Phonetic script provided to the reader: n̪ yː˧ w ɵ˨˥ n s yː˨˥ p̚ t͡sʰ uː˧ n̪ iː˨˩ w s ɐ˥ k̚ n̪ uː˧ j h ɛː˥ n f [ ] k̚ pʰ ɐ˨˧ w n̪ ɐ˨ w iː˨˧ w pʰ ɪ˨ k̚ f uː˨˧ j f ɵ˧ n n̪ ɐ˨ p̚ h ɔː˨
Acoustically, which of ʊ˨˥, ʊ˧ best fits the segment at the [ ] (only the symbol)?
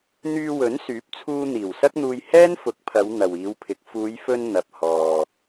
ʊ˨˥